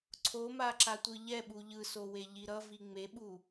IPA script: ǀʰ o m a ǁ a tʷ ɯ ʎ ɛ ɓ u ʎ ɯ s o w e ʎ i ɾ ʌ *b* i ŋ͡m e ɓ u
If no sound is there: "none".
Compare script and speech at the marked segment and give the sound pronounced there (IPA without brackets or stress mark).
v